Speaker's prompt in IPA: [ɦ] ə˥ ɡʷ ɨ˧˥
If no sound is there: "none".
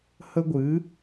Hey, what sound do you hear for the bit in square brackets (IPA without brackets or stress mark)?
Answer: h